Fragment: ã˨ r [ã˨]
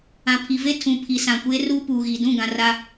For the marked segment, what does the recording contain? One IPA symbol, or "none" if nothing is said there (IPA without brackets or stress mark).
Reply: a˨